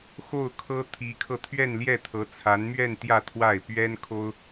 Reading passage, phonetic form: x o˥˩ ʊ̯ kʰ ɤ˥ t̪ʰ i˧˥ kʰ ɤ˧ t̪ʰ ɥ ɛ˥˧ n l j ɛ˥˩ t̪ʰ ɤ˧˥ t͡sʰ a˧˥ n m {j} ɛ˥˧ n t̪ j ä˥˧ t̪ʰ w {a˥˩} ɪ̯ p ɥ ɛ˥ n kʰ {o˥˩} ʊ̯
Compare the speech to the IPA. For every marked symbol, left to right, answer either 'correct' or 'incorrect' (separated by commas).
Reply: incorrect, correct, incorrect